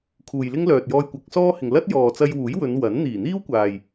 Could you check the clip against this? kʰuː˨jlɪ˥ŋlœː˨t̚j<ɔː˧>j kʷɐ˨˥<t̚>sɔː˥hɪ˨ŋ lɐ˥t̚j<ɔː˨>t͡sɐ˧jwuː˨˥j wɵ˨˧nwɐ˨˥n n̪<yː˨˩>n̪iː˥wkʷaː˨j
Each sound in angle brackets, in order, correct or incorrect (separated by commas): correct, incorrect, correct, incorrect